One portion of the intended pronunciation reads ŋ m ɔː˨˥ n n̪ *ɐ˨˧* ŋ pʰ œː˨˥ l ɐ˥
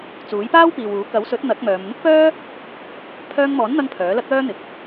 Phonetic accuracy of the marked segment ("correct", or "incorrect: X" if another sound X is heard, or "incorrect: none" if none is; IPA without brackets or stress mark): incorrect: ɐ˧